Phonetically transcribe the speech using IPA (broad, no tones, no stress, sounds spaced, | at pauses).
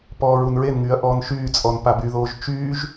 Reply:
p ɔː ɹ u n ɹ e n ŋ yː ɐ̯ ʔ ɔː n ʃ yː t͡sʼ ɔ n p a b y ð oː ʒ t͡ʃ yː ʒ